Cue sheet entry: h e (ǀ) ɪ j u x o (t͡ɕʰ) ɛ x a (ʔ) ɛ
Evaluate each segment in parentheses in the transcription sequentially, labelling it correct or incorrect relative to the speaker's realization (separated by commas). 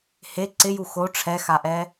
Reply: correct, incorrect, correct